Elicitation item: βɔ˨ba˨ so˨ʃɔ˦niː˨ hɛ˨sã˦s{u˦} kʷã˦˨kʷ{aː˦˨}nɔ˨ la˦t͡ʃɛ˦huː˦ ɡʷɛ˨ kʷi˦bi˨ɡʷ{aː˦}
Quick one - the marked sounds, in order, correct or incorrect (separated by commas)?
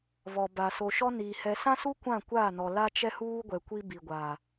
correct, correct, incorrect